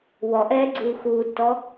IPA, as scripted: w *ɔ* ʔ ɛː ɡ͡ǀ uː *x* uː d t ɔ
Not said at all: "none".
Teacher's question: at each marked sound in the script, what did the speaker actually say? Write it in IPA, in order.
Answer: ɔ, x

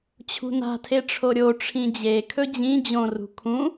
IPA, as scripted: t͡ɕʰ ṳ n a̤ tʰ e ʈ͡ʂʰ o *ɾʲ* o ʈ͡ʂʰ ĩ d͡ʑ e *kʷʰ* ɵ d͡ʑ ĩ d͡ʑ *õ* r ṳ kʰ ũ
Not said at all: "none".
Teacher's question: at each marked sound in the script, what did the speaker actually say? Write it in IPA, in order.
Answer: ɾʲ, kʰ, õ

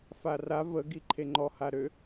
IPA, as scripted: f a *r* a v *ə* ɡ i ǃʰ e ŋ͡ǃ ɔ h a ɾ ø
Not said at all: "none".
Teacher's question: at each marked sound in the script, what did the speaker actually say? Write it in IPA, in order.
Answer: r, ə

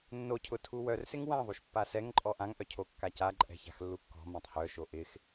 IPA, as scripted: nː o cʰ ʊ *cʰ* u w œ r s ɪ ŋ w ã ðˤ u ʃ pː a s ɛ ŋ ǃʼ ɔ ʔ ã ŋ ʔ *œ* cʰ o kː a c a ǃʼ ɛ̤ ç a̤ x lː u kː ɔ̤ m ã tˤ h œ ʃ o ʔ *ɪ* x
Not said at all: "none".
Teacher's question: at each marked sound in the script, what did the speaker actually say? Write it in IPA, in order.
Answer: tʰ, œ, ɪ

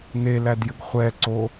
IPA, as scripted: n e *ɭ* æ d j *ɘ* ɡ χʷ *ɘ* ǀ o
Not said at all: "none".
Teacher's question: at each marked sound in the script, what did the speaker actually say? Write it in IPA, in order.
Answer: l, ɘ, ɛ

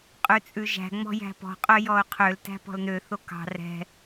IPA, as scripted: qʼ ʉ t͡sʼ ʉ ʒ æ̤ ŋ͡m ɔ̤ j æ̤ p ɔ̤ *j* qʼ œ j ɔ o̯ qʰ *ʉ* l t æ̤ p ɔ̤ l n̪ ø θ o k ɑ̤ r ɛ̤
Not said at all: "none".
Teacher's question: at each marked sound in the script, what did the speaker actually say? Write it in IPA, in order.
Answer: none, ø

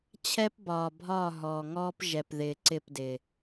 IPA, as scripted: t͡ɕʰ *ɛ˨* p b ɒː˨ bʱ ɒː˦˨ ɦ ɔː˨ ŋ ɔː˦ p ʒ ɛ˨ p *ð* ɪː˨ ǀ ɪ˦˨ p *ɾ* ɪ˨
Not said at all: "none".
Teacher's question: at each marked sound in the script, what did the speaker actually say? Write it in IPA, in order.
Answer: ɛ˦, ð, d

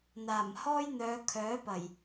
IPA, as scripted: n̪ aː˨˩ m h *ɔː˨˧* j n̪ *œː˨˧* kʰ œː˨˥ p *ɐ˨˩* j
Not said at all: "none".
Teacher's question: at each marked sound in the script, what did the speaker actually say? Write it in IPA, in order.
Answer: ɔː˥, œː˨˧, ɐ˨˩

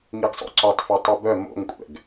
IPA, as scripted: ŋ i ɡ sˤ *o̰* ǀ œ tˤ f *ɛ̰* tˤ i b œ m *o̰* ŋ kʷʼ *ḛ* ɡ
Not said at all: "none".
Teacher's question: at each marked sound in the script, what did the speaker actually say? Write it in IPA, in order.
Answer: o̰, ɛ, o̰, ɛ̰

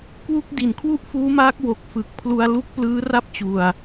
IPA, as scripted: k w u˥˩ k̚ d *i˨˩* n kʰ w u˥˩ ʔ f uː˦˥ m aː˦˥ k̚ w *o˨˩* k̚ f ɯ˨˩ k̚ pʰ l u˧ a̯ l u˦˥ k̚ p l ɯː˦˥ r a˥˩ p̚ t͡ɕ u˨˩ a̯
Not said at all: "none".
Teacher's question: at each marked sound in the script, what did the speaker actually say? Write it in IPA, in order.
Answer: i˨˩, o˨˩

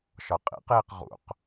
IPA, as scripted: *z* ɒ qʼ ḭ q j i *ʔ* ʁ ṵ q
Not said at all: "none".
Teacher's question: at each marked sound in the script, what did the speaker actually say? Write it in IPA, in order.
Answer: ʃ, q

